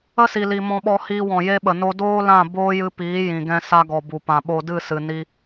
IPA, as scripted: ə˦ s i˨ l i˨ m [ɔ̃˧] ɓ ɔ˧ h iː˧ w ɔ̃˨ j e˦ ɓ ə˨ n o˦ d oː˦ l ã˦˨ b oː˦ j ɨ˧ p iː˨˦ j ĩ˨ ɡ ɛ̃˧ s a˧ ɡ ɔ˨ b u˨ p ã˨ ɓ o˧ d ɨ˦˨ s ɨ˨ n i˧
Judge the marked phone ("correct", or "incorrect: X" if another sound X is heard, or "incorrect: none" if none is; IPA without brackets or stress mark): correct